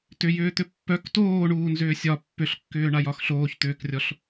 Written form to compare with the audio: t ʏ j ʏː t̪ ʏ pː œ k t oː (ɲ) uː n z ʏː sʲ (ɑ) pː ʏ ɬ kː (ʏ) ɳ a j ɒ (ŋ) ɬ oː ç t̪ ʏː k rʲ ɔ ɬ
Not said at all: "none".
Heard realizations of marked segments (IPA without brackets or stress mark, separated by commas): ɳ, ɒ, ʏː, x